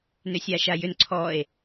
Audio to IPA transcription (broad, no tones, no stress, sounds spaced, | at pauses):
n ʏ sʲ a ʃ a j ʏ n ǀʰ ɔ e̯